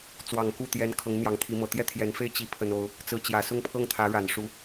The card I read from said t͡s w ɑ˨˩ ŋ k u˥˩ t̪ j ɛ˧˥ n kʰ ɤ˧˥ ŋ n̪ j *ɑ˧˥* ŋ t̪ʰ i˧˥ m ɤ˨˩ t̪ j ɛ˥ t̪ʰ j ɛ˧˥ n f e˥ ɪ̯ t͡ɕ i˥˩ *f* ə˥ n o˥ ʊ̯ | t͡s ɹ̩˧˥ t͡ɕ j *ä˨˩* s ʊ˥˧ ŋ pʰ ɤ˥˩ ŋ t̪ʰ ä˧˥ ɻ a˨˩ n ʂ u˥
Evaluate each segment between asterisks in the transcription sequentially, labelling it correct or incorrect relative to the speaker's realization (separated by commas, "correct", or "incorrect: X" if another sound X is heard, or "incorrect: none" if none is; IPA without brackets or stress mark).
correct, incorrect: pʰ, correct